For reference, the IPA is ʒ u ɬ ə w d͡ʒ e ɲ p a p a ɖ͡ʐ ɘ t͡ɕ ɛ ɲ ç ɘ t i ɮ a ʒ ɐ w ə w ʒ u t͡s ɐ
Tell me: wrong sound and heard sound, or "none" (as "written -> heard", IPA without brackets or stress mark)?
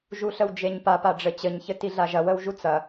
ɛ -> ɘ